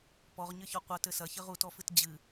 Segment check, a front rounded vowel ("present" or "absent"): absent